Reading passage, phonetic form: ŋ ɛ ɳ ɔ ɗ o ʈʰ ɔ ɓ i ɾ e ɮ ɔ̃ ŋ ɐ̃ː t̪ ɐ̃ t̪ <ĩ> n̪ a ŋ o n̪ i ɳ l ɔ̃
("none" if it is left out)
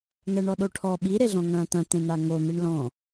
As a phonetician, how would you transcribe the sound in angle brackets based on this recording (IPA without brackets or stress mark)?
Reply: ẽ